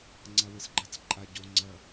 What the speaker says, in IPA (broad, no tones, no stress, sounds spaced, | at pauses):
ŋ͡ǀ a w ɨ s ɡ͡ǃ ɐ t͡s ǃʼ a ɟ o ŋ͡ǀ ɐ